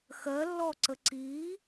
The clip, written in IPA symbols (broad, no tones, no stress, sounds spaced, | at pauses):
x ɜ lː ɔ ǀ ə ǀ i